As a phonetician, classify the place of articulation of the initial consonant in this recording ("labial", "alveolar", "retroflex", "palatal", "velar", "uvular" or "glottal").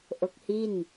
glottal